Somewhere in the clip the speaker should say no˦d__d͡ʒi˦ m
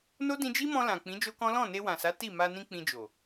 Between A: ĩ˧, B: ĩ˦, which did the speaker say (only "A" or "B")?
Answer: A